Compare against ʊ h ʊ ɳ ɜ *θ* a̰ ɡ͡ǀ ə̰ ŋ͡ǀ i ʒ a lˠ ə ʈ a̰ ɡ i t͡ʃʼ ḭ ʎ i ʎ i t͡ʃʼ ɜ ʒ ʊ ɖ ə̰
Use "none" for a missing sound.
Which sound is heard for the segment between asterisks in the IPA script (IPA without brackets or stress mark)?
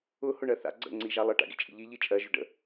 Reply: θ